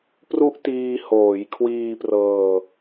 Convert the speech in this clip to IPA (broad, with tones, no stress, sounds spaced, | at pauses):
p r u˦˥ ʔ t iː˧ h oː˩˦ j kʰ w iː˧ p r ɤː˧